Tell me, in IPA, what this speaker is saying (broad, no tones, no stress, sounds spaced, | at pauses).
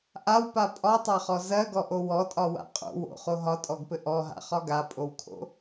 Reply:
ʔ a w p a pʼ ɒ tˤ a χ ɔ z ɜ ɡ ɔ ʔ o w ɔ tʼ ɒ w a̰ qʼ o̰ w o̰ χ o ɦ ɒ tʼ ɔ ɡ p ɘ ʔ ɔ ɦ a̰ χ ɒ ɡ a pʼ o w kʰ o̰